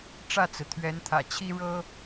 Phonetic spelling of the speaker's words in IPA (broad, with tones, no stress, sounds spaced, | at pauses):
ʈ͡ʂ ä˥˩ t͡s ɹ̩˩ t̪ʰ ɥ ɛ˧˥ n t̪ʰ ä̰˨˩ t͡ɕʰ i˥ ɻ ɤ˥